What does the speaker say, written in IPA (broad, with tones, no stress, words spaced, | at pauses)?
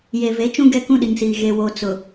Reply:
je˨ve˨˦t͡ʃũ˦ ɡɛ˦kũ˦ɗi˨ŋsiː˨ ɣe˦wo˦ t͡sʊ˨